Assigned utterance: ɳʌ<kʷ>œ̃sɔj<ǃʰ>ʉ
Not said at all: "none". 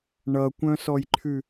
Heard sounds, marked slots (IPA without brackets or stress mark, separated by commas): kʷ, ǃʰ